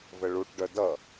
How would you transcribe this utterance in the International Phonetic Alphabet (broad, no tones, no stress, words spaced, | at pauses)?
vəɭuʈɖœ dʌ